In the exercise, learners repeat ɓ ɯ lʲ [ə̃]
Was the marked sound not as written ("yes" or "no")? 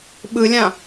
yes